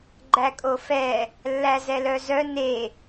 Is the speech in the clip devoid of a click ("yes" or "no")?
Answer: no